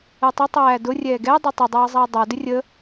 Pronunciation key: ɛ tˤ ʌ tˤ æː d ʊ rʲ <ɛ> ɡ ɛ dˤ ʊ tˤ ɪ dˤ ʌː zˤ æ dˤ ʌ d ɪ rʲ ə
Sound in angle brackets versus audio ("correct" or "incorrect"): incorrect